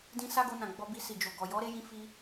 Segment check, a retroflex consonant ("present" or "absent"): absent